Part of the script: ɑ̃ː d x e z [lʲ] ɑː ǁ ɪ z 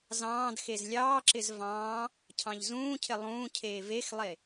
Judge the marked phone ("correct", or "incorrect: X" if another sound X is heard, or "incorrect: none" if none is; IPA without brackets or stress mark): correct